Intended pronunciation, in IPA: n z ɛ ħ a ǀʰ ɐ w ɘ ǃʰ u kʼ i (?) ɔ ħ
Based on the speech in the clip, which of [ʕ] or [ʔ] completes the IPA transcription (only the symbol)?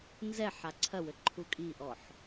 ʔ